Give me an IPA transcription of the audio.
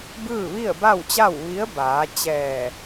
b ɯː˥˨ ʋ i˥˨ ə̯ b a˥˨ w t͡ɕ a˥˨ w ʋ i˧˥ ə̯ b aː˩˧ t͡ɕ ɛː˧˩

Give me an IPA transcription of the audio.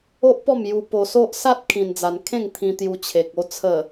o˦ ʔ p ɔ˥˧ m j u˧ p o˧ s o˦ ʔ s a˦ t̚ kʰ ĩ˧ n d͡z a˧ n kʰ ẽ˥˧ ŋ t̪ʰ ĩ˧ t̪ j u˧ t͡ɕʰ e˨ k̚ o˥˧ t͡sʰ ə˨˩

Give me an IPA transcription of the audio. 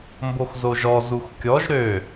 m b o x z o ʒ ɔ z u x kʲ ɔ ʒ ɾ ø

